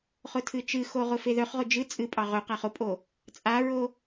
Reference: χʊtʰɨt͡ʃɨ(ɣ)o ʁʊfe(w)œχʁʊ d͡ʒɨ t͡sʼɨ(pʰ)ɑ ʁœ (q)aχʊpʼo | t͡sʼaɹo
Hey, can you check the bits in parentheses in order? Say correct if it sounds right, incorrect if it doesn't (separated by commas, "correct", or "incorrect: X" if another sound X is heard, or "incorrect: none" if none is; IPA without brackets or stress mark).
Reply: incorrect: x, incorrect: ð, incorrect: pʼ, correct